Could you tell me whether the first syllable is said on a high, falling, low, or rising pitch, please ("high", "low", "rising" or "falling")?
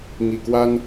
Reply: low